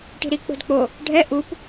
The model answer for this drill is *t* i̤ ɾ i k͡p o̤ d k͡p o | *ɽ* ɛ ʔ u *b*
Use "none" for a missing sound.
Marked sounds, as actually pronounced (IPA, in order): ʈ, ɖʱ, p

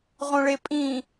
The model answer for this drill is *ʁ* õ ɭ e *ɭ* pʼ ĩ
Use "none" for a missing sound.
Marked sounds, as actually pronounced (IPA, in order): ʁ, none

